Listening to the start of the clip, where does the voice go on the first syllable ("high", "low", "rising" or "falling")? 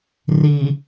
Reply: low